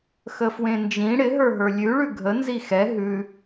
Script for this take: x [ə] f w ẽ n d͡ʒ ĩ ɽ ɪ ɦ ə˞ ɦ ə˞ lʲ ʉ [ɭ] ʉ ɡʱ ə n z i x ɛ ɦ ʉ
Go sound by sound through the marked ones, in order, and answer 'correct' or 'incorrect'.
correct, correct

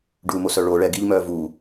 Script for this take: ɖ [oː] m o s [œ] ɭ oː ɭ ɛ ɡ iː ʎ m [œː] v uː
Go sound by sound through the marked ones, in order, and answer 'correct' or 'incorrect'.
incorrect: uː, correct, correct

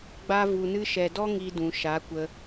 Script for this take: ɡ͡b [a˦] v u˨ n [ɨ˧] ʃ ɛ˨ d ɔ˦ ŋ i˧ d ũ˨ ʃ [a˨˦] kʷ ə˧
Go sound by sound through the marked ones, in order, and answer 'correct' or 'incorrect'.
incorrect: a˧, correct, correct

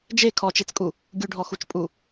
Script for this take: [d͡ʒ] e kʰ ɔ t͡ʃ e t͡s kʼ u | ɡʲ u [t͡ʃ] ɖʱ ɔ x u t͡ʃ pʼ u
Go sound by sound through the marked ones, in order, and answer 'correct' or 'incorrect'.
correct, incorrect: none

